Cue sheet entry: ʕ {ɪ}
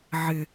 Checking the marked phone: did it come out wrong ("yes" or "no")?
no